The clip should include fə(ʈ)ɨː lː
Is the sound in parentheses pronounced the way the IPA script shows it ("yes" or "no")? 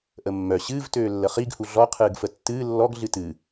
no